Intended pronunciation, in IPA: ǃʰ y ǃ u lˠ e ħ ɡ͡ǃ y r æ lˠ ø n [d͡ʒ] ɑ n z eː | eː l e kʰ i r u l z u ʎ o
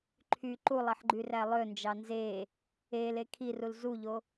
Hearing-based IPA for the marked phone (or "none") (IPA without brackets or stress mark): d͡ʒ